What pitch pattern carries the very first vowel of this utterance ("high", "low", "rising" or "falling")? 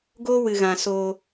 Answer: high